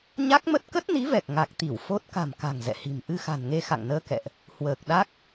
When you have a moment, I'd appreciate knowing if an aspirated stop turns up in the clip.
no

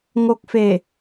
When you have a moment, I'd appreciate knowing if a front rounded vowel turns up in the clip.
no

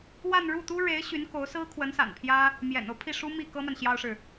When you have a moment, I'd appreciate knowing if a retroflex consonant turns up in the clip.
yes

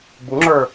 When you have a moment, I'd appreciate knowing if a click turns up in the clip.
yes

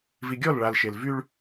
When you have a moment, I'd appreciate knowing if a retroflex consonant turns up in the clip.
yes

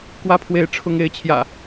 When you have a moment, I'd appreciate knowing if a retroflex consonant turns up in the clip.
yes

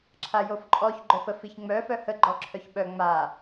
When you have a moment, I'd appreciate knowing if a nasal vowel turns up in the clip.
no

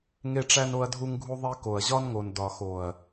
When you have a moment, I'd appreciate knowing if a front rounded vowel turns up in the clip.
no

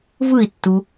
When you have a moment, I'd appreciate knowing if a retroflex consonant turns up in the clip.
no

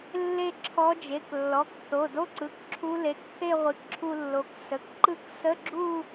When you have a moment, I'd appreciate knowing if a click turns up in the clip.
yes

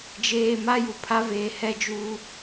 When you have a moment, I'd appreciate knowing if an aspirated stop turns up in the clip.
yes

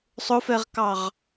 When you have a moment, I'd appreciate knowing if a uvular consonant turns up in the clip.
yes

